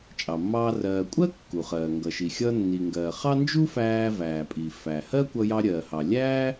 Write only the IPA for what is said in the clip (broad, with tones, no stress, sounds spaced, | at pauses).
t͡ʃʼ ɑ˩ mː ɑː˧ r ɜː˩ kʷʼ ɜ˥ kː u˩ χ ɜː˩ ŋ ɡ ʌ˩ ʃ i˩ xʲ ʌ˧ nː i˩ ŋ ɡ ɜː˩ χ ɑ˥ n d͡ʒ u˥ f æː˧ v æː˩ pʼ i˩ f æ˩ h ɜ˥ kʷ ʌ˧ j ɑ˧ ɾʲ ɜ˩ h ɑ˩ lʲ æː˥